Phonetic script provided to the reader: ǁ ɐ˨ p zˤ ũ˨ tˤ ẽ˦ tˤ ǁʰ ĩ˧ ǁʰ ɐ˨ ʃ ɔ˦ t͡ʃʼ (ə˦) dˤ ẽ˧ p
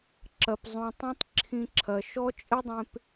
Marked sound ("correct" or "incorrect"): incorrect